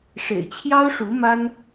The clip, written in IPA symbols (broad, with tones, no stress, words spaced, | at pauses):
ʂḛ˨˩ɪ̯t͡ɕʰjɑ˥ʊ̯ʂu˧˥ma˥n